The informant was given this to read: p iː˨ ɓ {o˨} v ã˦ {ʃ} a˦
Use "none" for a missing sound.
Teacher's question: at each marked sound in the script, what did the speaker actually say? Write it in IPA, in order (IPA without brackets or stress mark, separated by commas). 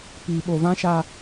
o˨, ʃ